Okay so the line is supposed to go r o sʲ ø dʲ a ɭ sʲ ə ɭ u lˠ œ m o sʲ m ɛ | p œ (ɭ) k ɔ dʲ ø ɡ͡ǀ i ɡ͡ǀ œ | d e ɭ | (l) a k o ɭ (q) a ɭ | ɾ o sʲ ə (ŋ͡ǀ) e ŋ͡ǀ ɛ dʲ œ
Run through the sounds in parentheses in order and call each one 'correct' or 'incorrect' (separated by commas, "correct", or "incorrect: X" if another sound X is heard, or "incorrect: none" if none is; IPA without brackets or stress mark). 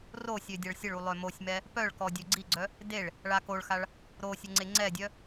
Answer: correct, incorrect: ɭ, incorrect: x, correct